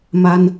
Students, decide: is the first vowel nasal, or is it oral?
oral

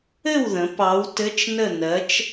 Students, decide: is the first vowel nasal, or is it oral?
oral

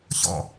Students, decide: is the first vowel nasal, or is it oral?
oral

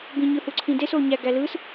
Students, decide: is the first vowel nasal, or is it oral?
nasal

